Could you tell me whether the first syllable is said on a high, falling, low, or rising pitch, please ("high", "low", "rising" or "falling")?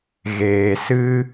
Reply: low